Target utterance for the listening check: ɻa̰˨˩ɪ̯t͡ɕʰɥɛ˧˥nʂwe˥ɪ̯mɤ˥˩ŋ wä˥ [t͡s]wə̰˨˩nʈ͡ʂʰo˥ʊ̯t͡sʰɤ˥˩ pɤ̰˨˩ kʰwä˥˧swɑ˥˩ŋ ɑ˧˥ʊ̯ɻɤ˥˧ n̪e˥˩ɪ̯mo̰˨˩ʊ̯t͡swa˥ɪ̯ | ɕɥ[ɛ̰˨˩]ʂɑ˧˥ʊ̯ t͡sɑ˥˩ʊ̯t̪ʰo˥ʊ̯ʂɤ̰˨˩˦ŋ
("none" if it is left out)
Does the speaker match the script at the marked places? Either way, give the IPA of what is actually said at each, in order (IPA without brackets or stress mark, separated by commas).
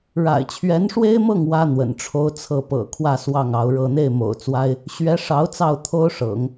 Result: n̪, ɛ˧˥